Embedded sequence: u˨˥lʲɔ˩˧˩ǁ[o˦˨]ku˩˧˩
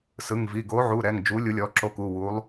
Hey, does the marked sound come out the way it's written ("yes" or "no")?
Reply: yes